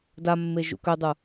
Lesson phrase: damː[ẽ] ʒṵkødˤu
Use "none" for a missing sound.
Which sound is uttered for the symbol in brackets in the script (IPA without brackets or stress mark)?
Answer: e